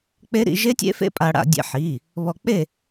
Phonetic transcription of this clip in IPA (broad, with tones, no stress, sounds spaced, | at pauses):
k͡p e˦˥ ɾ ḭ˨˥ ʒ e˦˥ tʲ ḛ˦˥ f ḛ˦˥ pʼ a˧ ɽ a̰˧ dʲ ḛ˧ ħ i˩˧˩ | β ɔ˧ k͡p e˥˨